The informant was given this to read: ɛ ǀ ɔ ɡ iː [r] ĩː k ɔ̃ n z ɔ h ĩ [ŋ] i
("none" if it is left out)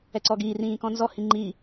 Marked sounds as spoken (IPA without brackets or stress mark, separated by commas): r, ŋ͡ǃ